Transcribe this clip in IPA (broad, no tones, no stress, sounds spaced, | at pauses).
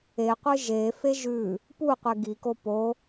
e qʷ ɨ ʒ e f e ʒ ʉ | p u qʷ e ɡ i k o p o